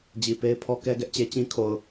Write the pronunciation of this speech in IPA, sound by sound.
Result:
d͡ʑ i˨ p e˦ ɪ̯ pʰ ɔ˦ k ɛ˦ ɡ ɛ˦ ʔ t͡ɕ e˦ t͡ɕ ĩ˦ kʰ o˨ ʊ̯

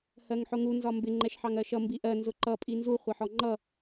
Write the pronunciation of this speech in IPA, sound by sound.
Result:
h ɜ ŋ ħ ʊ ŋ u n z ɒ m b ɪ ŋ͡ǃ ɛ ʃ ħ ɑ ŋ ɜ ʃ ʌ m b i ʔ ɜ n z ʊ ǃ ʌ pʼ i n z u χʷ ʌ ħ ɔ ŋ͡ǃ ʌ

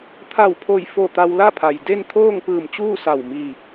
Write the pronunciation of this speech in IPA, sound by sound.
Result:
t̪ʰ a˧˩ w pʰ o˧˩ j f o˧˩ t̪ a˧ w l a˥˨ pʰ a˩ j d e˥˨ n t̪ʰ oː˥˨ ŋ p ɯː˧˩ m t͡ɕ uː˥˨ s a˧˩ w m iː˧˩ p̚

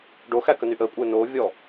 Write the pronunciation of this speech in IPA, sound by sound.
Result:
ɖ o x æ k ə n y ʔ əː kʷʼ ɘː n o vʲ ɔ

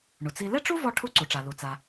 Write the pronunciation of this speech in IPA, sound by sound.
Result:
ɳ u˩ t͡s i˧ l e˥ ʈ͡ʂ u˥ v ɔ˧ ʈʰ u˧ ǀ u˩ ʈ͡ʂ a˩ l u˩ t͡s a˩

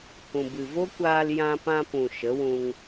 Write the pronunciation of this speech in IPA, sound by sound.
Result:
h ũ˨ b ɨ˨ v o˦ kʷ aː˧ l j ã˧ p ã˧ p ũ˨ ʃ ə˨˦ w ũ˧ ŋ

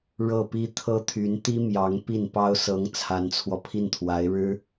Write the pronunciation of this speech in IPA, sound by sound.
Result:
ɻ ɤ˥˩ p i˥ t̪ʰ ɤ˥ t̪ʰ y˧˥ n t̪ i˥ m j ɑ˧˥ ŋ p i˥˩ n p ɑ˥ ʊ̯ s ɤ˧˥ ŋ t͡sʰ a˧˥ n t͡sʰ w ɔ˧ pʰ i˥˩ n t̪ʰ w a˧˥ ɪ̯ ɻ ɻ̩˥

